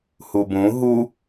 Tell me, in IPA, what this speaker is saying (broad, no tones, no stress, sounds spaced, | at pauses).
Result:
h u b ũ ɦ u